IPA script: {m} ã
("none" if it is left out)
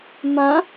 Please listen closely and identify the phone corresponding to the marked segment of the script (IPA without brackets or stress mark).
m